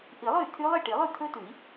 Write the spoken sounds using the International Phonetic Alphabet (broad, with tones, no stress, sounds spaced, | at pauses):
ʔ i˨˩˦ lˠ ɵ˥˩ y̯ t̪ʰ y˦˥ lˠ i˥˩ ʈ i˨˩˦ lˠ ʉ˥˩ t̪ʰ ɵ˦˥ t ʉ˨˩˦ i̯